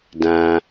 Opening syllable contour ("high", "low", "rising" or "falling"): low